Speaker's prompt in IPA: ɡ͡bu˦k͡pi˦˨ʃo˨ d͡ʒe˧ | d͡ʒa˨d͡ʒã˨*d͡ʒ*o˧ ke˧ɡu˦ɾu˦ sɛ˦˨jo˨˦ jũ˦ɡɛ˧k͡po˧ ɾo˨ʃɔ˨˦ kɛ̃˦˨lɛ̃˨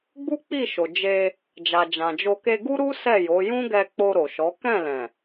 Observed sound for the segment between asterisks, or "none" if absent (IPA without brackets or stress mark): d͡ʒ